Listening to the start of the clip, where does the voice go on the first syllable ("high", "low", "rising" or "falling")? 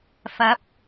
rising